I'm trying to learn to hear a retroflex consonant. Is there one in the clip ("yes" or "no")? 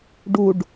yes